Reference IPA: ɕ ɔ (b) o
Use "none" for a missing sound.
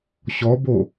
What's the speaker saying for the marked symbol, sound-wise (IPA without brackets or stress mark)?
b